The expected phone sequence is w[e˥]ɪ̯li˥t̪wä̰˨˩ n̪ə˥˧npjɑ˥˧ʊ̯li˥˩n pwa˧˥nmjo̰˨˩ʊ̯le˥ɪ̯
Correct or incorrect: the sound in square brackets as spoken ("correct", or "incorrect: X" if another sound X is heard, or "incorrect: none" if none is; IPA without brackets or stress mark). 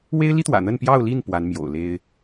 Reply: correct